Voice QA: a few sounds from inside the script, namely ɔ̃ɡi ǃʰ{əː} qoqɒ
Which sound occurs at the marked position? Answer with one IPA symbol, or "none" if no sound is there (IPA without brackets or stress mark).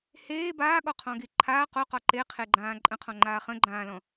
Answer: aː